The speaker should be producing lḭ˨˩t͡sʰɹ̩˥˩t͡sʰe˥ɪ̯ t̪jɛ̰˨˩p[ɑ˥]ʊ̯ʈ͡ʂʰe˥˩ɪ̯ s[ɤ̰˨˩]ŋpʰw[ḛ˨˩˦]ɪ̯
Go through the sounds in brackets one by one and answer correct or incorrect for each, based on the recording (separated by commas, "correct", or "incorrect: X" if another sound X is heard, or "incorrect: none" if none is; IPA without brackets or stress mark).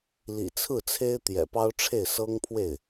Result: correct, incorrect: ɤ˥, incorrect: e˥˩